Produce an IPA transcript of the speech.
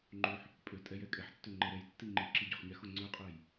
ŋ͡ǃ o ħ | pʼ ø tʼ ɛ j ɛ kʼ ɛ ħ tː ø ŋ͡ǃ ɛ ɾ ɛ j tː i ŋ͡ǃ i ǁ i ɟ ø χ ɲ ɛ x o ŋ͡ǀ ø qʼ ɛ j

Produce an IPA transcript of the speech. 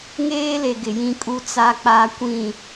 ŋ eː˦ l e˨ ɡ ɪ˨ j ĩ˦ kʼ u˦ t͡s a˦ k͡p a˦ kʷ ĩ˦˨

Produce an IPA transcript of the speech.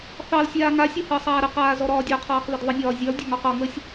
θ ɑ l sʲ aː ŋ a sʲ ɔ h əː sˤ aː ɾ ə q aː z ɔ ɾ ɒː dʲ ɔ qʰ ɒː q ð ə d ðˤ ə nʲ ɒː zʲ ɒ l dʲ ɒ ŋ ɔ q ɒ ŋ əː sʲ

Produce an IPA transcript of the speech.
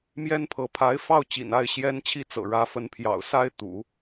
m j ɛ˥ n pʰ ɤ˧˥ pʰ a˧˥ ɪ̯ f ɑ˥˩ ʊ̯ t͡ɕ ḭ˨˩ n a˥˩ ɪ̯ ɕ j ɛ˥ n t͡ɕʰ i˥ t͡s ɤ̰˨˩ ɻ ä˧˥ f ə˧˥ n pʰ j ɑ̰˨˩ ʊ̯ s a˥ ɪ̯ t̪ ṵ˨˩˦

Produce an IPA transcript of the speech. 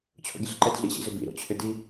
t͡ɕʰ o̰ ɡʲ ə ɬ ǃ ɛ d ɮ ḭ ɕ ḭ z ʏ b ḭ ɾ o̰ t͡ɕʰ ʏ d i

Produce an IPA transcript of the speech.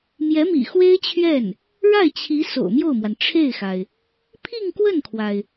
m j ɛ˧˥ m ḭ˨˩ x w e˥ ɪ̯ t͡ɕʰ ɥ ɛ˥˩ n | ɻ a˥˩ ɪ̯ t͡ɕʰ i˧˥ s o̰˨˩ ʊ̯ m j o˥˩ ʊ̯ m w a˩ n ʈ͡ʂʰ e˥˩ ɪ̯ x a˩ ɪ̯ | pʰ i˥˧ ŋ k w ə˥˩ n kʰ w a˩ ɪ̯

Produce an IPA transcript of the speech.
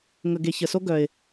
ŋ ə˨ ɡ e˨ ç ə˨ s o˦ ɡ œ˨ ɪ̯

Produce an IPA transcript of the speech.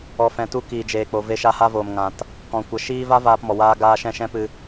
ɔ˨ f ɛ̃˨ t u˧ k iː˨ d͡ʒ eː˨ k͡p o˨ v e˧ ʃ a˧ h a˧ v oː˨ m ŋ ã˨ t | k ɔ̃˨ kʷ ə˨ ʃ iː˧ v a˦ v aː˧ p m ɔ˨ w aː˦ ɡ aː˦ ʃ ɛ̃˦ ʃ ɛ̃˦ p ɨ˧

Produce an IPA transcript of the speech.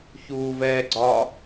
ç uː v ɛː ɡ͡ǀ ɒ

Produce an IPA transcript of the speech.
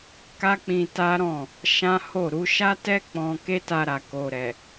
k a˦ k͡p ĩ˧ t a˦ ɾ ɔ̃˦˨ | ʃ ã˦ h o˦˨ ɾ u˧ ʃ a˦ t ɛ˦ k͡p ɔ̃˧ k e˦ t a˧ ɾ a˨ k o˨ ɾ ɛ˨

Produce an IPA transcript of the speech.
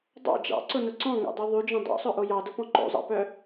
dˤ ɑ̰ d͡ʒ ɑ̰ ǀ ʊ n ʊ ǀ ɔ̃ ŋ o̰ dˤ y ðˤ y d͡ʒ ɔ̃ dˤ o̰ sˤ œ ʔ o j ɑ d ʊ p ɔ̃ ǃ o̰ zˤ ɑ̰ p œ

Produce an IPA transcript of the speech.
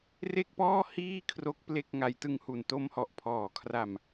r e˥˩ k̚ p ɔː˥˩ h iː˥˩ kʰ r o˦˥ k̚ p l e˥˩ k̚ ŋ a˧ j t ɯ˧ ŋ h u˨˩ n t o˦˥ m h ɔ˨˩ ʔ pʰ ɔː˨˩ kʰ r a˧ m

